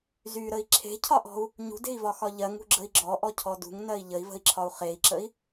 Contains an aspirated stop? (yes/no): yes